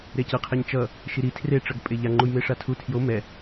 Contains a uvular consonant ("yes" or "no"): yes